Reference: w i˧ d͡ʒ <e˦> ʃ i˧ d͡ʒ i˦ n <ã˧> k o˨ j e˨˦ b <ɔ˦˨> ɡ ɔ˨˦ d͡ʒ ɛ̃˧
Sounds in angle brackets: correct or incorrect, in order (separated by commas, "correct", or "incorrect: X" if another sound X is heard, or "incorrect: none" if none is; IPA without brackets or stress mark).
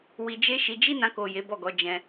correct, correct, correct